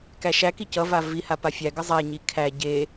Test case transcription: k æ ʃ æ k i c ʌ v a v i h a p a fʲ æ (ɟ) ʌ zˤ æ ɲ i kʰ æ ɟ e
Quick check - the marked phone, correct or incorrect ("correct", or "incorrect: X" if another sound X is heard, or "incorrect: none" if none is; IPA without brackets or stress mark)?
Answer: incorrect: ɡ